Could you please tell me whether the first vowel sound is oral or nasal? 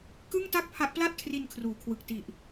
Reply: oral